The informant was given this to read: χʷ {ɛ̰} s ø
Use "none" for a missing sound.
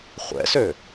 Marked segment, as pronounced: ɛ̰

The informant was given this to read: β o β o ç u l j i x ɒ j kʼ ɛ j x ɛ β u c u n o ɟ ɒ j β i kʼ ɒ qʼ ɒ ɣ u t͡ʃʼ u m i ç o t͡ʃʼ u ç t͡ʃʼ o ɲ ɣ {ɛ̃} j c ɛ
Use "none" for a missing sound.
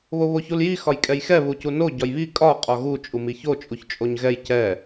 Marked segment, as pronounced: ɛ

